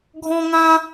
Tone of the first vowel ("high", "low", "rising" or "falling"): high